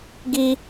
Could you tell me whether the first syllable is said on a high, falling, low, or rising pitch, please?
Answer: high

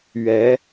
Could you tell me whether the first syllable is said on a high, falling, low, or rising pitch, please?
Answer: rising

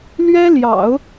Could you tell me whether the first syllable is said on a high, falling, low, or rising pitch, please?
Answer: high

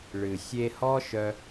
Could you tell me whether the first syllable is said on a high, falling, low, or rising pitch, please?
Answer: low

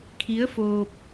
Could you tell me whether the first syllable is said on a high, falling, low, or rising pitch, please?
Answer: rising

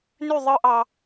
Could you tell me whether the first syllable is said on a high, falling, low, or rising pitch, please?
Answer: falling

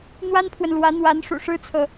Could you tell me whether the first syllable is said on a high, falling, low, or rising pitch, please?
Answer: high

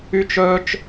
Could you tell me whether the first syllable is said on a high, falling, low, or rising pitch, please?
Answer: high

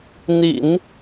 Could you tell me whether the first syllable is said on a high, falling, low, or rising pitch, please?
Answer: low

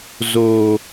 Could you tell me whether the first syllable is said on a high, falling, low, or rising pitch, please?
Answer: low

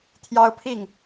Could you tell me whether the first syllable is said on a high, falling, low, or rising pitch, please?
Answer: high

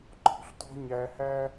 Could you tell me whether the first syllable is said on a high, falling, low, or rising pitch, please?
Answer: rising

